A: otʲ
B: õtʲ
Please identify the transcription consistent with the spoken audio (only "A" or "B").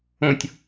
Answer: B